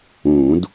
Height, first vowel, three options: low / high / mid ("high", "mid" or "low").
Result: high